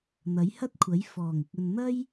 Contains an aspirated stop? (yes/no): yes